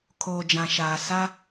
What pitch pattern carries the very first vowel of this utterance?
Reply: low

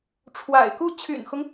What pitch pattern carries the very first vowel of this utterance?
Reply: low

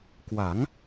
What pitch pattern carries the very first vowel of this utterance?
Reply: rising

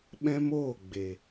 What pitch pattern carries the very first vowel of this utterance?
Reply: high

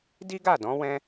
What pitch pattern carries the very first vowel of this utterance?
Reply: high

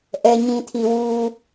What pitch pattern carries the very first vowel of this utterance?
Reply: low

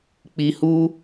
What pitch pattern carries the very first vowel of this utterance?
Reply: low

